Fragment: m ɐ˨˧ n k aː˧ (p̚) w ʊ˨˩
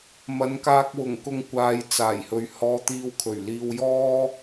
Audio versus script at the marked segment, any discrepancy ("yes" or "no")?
yes